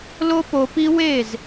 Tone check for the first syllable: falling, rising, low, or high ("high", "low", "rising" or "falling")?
high